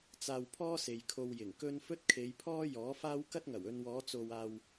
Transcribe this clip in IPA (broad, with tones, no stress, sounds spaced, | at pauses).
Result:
t͡s aː˧ w pʰ ɔː˥ s e˨ j kʰ o˧ w j ɪ˨˩ ŋ k ɵ˥ n f ɵ˥ t̚ kʰ e˨˧ j pʰ ɔː˥ j ɔː˨˥ f aː˥ w k ɐ˥ t̚ ŋ ɐ˨˩ w ɵ˧ n w ɔː˨˧ t͡s o˨ w aː˨ w